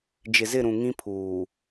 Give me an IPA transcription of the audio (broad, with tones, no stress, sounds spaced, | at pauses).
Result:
d͡ʒ ɪ˨ z ɪ˦˨ ɾ ũ˨ ŋ ĩ˦ pʰ uː˨